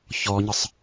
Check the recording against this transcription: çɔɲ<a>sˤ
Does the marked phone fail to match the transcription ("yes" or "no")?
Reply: yes